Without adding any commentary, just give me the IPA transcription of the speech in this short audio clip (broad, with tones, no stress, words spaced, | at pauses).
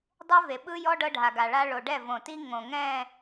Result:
dˤe˦ve˨ɓɯ˦jɔ˦ ɖɤ˦ɖʱa˨ɡa˨ɭa˦ ɭo˨ɖɛ˦˨võ˨ti˦ ŋõ˨ŋɛ̃˦˨